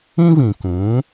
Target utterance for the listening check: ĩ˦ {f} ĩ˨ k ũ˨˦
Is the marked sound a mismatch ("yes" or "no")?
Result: yes